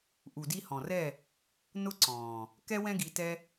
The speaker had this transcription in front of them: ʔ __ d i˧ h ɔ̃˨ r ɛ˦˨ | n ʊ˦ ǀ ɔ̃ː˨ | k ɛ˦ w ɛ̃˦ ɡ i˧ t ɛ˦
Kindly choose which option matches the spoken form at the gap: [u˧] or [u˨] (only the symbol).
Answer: u˨